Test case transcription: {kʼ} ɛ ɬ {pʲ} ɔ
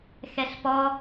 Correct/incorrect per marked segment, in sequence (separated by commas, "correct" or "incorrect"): incorrect, incorrect